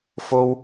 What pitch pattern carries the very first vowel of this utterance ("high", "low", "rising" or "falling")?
high